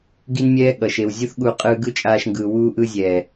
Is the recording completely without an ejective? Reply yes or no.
no